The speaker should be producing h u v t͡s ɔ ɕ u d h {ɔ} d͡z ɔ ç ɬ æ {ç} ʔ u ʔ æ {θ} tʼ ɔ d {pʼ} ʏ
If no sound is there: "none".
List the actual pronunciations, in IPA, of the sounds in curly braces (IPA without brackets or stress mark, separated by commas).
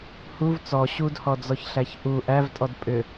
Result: ɔ, ç, v, pʼ